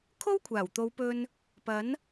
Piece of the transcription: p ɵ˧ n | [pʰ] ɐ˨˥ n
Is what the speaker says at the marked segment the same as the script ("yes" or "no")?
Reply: no